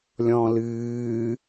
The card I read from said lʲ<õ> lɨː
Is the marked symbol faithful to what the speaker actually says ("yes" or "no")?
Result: no